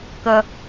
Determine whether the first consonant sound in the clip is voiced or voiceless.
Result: voiceless